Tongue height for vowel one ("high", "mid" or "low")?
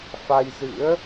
low